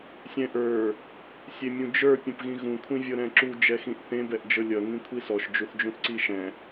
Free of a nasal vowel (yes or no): no